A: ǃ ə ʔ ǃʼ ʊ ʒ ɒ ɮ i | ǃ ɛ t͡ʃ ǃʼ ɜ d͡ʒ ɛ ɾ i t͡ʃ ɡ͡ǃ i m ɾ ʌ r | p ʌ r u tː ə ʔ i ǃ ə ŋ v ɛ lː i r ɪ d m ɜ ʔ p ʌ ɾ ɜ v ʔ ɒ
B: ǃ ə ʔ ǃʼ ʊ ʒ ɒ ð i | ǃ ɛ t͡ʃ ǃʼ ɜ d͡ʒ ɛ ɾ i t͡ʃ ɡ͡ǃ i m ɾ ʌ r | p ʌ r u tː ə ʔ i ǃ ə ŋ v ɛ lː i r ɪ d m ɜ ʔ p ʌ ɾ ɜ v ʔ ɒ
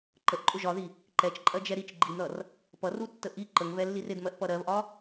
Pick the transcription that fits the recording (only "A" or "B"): B